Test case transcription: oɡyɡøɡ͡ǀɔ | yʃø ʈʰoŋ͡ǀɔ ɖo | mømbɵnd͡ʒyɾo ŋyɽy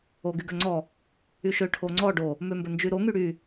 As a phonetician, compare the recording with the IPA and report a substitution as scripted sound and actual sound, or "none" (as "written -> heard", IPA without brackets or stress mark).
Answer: ɡ͡ǀ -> ŋ͡ǀ